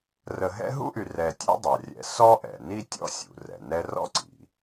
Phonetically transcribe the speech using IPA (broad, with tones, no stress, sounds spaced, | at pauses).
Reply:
r ə˨ ɦ ɛ̰˦ ɦ ṵ˥ ʔ y˨ r ɛ˨ tʲ a̰˦ dˤ a˩ rʲ ɛ̰˨ s ɔ˥ ʔ ɛ̰˩ n i˥ tʲ ɔ̰˥ sʲ ṵ˩ r ɛ̰˩ n ɛ˦ r ɔ̰˥ ǀ ḭ˩